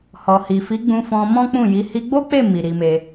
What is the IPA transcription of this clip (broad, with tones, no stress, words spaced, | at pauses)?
hɔ˨hi˨fi˨˦ ɡ͡bũ˧fɔ̃˧ mɔ̃˦k͡pũ˦˨ji˨˦ hi˧ɡ͡bo˦k͡pe˦˨ mi˨ ɾi˧me˧